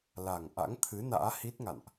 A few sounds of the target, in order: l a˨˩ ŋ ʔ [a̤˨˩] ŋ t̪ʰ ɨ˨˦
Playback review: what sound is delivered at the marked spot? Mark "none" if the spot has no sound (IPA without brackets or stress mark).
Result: a̰˧˥